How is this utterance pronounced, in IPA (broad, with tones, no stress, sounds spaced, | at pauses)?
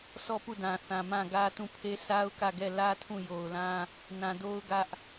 s ɔ˦˨ p u˦˨ d ã˨ θ ã˨ m ã˦˨ ɡ ä˦ t ũ˦˨ pʰ e˦ sʰ a˦ ʊ̯ k ä˦˨ ɡ ɛ˦˨ l ä˦ tʰ ũ˦˨ j o˨ ʊ̯ l ã˦ | n ã˨ d o˦ ʊ̯ ɡ ä˦ ʔ